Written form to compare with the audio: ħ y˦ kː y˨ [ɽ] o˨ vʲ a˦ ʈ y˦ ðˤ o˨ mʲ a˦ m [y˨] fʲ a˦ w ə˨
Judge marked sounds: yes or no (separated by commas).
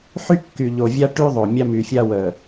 no, yes